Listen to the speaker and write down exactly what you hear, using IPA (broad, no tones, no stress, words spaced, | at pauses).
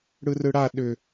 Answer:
ɽɯrɯɽa ɗʏ